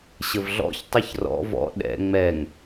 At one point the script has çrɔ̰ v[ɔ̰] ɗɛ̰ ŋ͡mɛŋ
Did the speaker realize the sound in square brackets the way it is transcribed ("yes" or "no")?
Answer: yes